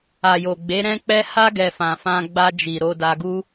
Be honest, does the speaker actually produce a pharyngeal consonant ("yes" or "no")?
no